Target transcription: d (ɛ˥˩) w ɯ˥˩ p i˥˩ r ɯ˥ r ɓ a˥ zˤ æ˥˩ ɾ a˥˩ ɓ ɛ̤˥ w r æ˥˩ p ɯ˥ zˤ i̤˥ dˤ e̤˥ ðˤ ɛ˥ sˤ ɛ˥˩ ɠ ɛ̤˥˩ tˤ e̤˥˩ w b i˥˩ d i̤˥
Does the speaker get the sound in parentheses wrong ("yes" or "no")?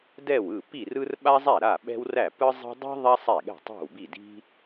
no